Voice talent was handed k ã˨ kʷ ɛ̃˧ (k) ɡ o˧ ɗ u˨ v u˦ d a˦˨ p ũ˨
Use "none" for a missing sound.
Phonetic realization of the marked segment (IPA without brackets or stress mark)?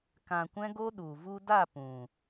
none